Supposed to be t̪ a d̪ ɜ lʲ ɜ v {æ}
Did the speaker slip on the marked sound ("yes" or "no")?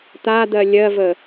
yes